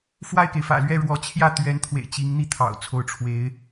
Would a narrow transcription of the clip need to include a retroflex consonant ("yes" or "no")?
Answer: yes